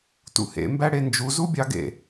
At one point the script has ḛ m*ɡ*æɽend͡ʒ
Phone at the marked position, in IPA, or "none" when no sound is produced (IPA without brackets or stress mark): b